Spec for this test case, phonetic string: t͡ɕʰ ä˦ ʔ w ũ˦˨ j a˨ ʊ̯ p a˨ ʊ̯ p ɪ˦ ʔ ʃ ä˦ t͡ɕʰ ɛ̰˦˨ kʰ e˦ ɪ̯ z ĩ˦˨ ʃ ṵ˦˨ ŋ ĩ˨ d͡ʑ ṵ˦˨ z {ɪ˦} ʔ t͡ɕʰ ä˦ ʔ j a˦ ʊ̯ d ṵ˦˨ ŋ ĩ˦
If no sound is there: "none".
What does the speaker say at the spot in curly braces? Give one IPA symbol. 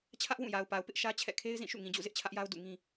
ɪ˦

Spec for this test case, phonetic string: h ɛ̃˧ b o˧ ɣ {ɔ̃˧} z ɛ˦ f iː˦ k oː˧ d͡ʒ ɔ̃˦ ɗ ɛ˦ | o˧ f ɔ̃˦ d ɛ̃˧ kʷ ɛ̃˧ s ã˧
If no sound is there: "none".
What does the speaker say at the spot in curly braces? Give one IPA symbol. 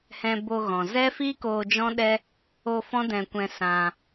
ɔ̃˨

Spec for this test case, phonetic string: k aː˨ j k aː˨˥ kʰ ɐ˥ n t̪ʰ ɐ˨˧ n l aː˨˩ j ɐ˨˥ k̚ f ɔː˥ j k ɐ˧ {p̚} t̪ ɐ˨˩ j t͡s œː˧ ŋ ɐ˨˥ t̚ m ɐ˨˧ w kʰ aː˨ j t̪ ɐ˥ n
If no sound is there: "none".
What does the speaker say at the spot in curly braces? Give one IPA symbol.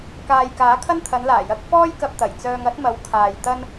p̚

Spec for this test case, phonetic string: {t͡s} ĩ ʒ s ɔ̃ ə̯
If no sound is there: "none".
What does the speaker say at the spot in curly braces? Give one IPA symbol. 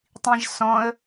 tˤ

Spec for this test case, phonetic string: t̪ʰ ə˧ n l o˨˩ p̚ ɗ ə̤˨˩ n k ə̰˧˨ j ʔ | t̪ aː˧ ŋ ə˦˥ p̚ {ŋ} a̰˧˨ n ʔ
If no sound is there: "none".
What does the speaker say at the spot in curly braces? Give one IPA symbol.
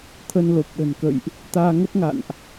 ŋ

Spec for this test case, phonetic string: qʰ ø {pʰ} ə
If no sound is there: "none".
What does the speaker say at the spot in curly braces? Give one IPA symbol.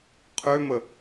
m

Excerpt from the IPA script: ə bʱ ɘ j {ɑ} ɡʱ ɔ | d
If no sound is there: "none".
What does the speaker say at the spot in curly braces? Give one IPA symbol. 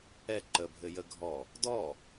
ə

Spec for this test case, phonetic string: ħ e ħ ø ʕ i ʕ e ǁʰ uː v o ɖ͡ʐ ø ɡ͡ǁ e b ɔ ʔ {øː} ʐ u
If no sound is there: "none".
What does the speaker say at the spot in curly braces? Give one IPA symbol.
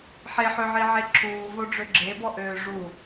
øː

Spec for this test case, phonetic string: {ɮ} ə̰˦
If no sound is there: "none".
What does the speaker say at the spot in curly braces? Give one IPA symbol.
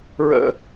ɹ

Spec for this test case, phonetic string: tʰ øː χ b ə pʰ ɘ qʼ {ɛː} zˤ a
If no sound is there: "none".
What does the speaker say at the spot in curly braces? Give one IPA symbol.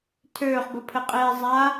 eː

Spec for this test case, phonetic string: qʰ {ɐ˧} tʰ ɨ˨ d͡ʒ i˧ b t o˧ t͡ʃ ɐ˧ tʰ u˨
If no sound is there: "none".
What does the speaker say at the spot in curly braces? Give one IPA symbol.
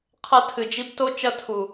ɐ˧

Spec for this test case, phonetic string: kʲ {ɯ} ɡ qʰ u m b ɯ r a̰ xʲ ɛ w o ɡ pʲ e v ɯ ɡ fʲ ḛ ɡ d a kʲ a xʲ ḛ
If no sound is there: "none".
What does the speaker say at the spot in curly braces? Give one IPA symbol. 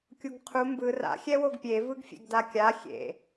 u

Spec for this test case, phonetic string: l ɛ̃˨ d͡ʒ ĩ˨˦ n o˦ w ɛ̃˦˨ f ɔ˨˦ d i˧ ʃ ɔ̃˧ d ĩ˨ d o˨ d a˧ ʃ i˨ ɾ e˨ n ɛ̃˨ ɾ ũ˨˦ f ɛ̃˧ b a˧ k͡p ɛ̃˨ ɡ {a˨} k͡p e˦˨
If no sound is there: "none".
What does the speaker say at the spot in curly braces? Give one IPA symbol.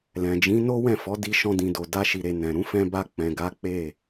a˨˦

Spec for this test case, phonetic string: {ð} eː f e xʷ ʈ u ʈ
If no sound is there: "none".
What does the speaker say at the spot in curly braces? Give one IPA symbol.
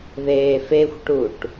ð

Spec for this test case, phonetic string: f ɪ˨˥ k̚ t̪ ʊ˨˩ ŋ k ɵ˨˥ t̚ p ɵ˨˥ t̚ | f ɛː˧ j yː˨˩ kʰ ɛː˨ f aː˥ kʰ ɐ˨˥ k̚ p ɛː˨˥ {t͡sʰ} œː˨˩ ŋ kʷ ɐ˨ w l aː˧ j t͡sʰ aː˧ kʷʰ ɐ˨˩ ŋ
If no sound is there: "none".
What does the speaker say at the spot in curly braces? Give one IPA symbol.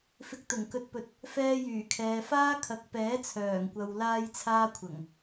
t͡sʰ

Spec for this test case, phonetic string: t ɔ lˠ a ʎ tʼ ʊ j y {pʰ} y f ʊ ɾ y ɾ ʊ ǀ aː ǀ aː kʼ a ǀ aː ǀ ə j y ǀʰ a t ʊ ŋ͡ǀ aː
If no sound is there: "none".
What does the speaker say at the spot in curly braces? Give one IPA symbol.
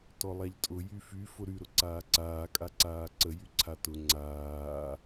f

